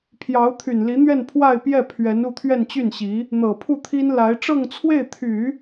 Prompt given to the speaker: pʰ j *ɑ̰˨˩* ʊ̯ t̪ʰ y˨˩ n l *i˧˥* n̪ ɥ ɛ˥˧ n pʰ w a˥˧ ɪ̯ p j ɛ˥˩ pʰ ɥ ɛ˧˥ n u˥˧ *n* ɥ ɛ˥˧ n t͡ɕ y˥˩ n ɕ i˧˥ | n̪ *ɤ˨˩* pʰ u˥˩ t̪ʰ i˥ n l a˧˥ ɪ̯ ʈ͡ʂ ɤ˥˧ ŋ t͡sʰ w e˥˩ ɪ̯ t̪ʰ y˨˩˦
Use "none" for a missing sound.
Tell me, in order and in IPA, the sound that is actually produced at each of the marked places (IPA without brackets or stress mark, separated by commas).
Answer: ɑ˧˥, i˧˥, t̪ʰ, ɤ˨˩